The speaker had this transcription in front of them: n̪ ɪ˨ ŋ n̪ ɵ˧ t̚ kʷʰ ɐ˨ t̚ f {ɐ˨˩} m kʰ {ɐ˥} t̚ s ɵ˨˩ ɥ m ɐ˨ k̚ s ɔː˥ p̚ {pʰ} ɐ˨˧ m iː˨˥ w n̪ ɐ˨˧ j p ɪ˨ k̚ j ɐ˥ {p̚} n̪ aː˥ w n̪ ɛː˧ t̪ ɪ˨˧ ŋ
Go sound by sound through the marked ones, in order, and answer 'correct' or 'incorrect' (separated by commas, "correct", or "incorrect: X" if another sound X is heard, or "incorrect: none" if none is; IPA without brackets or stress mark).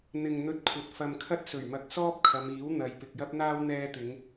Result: incorrect: ɐ˧, correct, incorrect: kʰ, correct